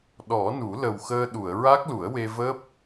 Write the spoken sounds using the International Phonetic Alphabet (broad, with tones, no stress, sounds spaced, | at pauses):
ɗ ɔ˨˩˦ n u˨˩˦ l ə˨˩ w x əː˧ ɗ u˨˩˨ ə̯ ɹ a˦˥ k̚ l u˨˩˦ ə̯ w e˧ v əː˦˥ p̚